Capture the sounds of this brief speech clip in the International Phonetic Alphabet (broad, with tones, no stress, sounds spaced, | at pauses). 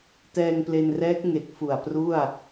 t ɛː˧ ŋ p l e˧ n r ɛː˦˥ k̚ ŋ e˨˩ k̚ f u˨˩ a̯ p r u˥˩ a̯